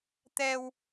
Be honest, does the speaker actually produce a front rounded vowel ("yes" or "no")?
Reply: no